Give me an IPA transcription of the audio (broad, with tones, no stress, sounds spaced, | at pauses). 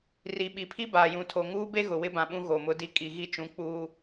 r i˨ ɓ i˨ pʰ i˦ b aː˨ j ũ˨ tʰ o˨ ŋ uː˦ b e˦ ɣ ʊ˨ w ɪ˦ b ã˨ ɓ ũ˦ ɣ o˨ m ʊ˦ d i˦ kʼ i˨ ɣ i˦ t͡ʃ ũ˨˦ k͡p uː˦